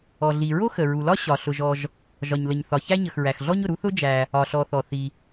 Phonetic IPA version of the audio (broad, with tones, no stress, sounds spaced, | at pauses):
ɔ˩ ɮ i˩ ɹ o˥ x ə˩ ɹ u˩ l ɒ˥ ɕ ɒ˩ ɬ ʊ˩ ʒ ɔ˩ ʒ | ʒ ɒ˩ ɲ l ə˩ ɲ θ ɒ˩ ç æ˥ ɲ ə˩ x ɹ æ˩ x ɮ ɔ˥ ɲ ʊ˩ ɾ u˥ θ ʊ˥ d͡ʒ æ˩ | ɒ˩ ɬ ɔ˩ θ ɔ˩ θ i˩